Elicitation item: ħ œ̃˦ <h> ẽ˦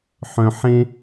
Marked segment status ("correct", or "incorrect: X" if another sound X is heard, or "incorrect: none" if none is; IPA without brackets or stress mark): incorrect: ħ